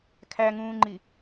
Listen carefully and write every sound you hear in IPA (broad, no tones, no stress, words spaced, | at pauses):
kʰæŋũːŋ͡ǃi